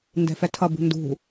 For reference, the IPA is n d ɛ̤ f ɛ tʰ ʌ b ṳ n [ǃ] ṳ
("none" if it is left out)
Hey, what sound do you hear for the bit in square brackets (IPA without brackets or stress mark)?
d